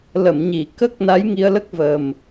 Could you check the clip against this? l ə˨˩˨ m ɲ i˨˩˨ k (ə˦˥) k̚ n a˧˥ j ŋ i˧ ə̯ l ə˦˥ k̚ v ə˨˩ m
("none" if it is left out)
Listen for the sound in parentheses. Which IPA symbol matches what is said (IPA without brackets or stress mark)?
ə˦˥